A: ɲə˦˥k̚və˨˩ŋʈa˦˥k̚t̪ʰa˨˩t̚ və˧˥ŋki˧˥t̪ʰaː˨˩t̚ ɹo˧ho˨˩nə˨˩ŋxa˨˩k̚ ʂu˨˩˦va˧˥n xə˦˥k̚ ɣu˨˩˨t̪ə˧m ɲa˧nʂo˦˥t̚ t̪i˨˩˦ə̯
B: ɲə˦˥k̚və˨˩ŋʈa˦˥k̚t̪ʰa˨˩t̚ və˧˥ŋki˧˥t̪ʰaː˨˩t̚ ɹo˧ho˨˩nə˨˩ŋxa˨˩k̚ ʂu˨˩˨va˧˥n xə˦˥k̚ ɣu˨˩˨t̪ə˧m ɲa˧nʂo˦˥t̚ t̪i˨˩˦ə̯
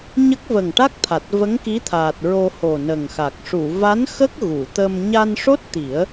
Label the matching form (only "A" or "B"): B